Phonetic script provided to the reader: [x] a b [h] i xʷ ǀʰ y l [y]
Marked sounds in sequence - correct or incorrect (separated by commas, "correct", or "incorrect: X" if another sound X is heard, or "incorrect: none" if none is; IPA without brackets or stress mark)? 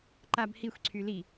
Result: incorrect: ǃ, correct, incorrect: i